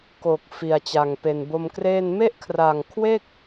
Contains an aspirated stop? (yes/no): yes